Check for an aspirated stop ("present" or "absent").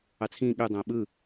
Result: present